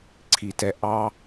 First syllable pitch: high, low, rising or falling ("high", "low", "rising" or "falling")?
high